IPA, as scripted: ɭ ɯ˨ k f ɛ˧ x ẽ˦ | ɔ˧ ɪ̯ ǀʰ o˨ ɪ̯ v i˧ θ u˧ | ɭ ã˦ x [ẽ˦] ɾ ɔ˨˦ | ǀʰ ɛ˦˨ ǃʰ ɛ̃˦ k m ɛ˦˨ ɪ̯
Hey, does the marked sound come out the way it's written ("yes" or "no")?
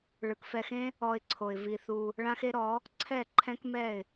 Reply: no